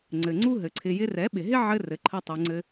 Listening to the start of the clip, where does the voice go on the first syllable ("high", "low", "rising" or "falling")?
low